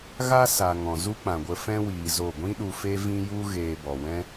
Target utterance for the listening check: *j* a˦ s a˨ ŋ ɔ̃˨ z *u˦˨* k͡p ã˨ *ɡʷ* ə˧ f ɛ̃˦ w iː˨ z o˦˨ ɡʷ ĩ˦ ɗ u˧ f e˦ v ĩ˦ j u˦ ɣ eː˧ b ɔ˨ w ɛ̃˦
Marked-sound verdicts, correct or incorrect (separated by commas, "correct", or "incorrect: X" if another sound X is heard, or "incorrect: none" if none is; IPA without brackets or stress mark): incorrect: ɣ, incorrect: u˦, correct